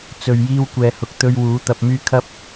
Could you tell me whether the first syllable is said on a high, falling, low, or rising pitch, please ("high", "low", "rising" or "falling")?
low